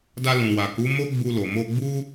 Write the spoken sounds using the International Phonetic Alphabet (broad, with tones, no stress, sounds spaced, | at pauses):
d a˧ l ũ˨ w a˨ k u˨˦ m o˦ ɡ͡b u˧ l o˨ m o˧ ɡ͡b u˦